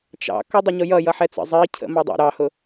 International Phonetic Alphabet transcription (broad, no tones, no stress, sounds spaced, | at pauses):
t͡ʃ ɑ̰ k ʌ dˤ ʌ ɲ ʊ j ʌ j ʌ ħ ɛ t͡s ə̰ zˤ i cʰ ə̰ m ɑ dˤ ɛ̰ ɾ ɑ h ʊ